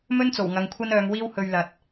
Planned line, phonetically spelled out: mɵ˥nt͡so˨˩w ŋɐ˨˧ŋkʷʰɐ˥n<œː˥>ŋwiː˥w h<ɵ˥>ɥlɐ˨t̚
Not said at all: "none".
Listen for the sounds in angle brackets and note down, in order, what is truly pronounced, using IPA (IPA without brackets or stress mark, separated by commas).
œː˨˧, ɵ˧